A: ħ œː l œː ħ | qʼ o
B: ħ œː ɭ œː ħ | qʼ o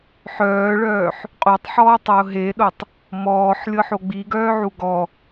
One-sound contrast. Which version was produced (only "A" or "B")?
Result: B